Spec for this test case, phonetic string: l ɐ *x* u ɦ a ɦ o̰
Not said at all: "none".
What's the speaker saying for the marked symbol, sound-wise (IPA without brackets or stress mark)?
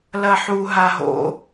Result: ħ